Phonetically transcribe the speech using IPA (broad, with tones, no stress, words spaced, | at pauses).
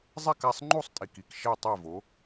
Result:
zˤɛ˥˩ka˥˩sˤŋ͡ǃu˥˩sˤtʼi˩k i˩k ʃɛ˥˩tˤɛ˥˩vo˩˥